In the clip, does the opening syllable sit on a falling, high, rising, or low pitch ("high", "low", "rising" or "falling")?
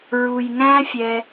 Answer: low